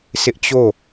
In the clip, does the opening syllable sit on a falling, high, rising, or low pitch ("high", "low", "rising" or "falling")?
high